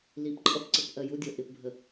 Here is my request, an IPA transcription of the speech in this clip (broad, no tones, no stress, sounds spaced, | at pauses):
l i p ǃʼ ʌ p ǀ ə p ʔ ɜ j u dʲ ʌ ʔ ɪ p bʱ ə